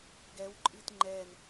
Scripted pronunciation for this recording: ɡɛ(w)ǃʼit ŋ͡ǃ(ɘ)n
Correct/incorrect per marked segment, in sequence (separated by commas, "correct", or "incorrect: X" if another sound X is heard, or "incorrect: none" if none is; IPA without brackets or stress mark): correct, incorrect: ɛ